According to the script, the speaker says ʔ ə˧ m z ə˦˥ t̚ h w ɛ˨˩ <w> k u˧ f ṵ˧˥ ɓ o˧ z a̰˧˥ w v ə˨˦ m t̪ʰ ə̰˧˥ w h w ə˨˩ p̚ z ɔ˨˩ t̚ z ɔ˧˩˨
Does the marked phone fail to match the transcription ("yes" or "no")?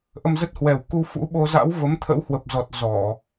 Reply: no